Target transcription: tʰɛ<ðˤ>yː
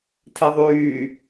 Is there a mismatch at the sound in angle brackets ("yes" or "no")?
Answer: no